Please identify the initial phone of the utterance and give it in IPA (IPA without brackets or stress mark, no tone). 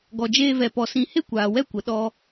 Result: ɡ